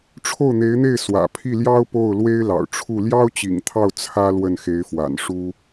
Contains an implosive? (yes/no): no